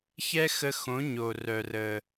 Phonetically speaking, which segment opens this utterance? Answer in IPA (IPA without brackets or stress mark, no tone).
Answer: ç